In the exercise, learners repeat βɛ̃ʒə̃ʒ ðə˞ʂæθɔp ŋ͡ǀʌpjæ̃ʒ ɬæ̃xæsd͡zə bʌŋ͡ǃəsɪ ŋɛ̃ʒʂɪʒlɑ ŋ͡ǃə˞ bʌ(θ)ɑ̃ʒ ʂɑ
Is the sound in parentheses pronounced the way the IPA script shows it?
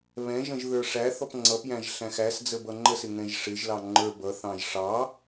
yes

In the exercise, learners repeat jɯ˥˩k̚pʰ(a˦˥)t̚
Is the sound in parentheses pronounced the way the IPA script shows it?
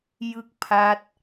yes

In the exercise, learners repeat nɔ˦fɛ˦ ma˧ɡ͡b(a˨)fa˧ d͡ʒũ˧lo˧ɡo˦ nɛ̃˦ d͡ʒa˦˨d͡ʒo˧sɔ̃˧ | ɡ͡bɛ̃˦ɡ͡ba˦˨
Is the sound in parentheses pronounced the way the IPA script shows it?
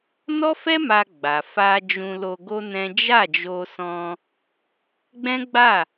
yes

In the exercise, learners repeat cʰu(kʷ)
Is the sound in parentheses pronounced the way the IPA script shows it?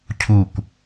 yes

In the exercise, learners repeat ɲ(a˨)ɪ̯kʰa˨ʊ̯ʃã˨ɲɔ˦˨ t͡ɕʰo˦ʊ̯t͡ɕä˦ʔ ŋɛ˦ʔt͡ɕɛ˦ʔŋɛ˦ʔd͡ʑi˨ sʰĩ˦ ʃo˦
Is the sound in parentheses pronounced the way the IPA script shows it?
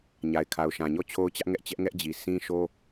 yes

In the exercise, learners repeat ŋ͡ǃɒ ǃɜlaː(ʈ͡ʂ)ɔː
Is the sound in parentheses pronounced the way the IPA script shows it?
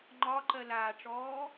yes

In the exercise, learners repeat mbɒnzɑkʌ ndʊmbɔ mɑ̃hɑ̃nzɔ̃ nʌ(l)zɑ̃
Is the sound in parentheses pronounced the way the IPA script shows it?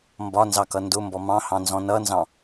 no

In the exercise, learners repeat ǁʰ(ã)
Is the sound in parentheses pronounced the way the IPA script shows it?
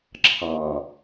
no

